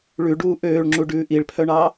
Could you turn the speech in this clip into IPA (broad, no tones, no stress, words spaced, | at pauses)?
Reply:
ɭʉɖuː ʔøːɭŋ͡ǁuɖʉː ʔiɭpʰœɳɑ